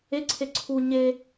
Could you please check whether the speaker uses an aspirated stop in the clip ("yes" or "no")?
yes